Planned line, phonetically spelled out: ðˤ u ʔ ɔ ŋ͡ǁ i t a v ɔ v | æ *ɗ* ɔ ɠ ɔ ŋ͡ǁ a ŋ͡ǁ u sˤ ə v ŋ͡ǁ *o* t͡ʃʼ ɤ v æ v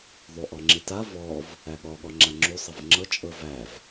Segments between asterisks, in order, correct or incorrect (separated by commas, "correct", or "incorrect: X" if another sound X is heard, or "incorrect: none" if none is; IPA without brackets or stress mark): incorrect: ɠ, incorrect: ɤ